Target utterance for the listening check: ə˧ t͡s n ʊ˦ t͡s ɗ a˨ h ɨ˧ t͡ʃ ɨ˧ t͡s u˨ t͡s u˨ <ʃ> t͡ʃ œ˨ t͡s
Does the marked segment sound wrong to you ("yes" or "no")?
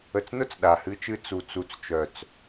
yes